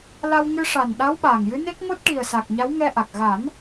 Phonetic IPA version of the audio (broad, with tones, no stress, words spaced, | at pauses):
la˧wŋɨ˧ʂa˨˩nɗa˧˥w ɓaː˨˩ŋjɨ˧˥ne˦˥k̚ ŋo˦˥t̚ʈi˨˩ə̯sa˨˩k̚ ɲa˧˥w ŋɛ˧ʔa˨˩k̚ ɣa˨˩˦n